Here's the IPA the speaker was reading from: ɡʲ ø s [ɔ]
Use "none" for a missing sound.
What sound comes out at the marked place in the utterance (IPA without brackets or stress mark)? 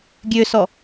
ɔ